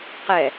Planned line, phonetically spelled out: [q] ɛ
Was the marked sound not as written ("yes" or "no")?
no